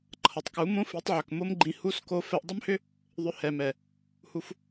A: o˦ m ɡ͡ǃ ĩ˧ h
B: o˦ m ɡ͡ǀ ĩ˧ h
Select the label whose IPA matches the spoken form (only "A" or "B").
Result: A